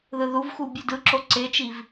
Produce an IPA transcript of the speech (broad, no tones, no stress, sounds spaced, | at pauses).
ð ɯ ð u v x u bʲ u d ɯ ǁ o ǀ e t͡ʃ i v